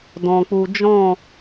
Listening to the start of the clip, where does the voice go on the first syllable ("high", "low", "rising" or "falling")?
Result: low